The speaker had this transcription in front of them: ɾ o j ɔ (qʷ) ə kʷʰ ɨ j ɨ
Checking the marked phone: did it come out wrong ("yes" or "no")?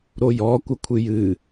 yes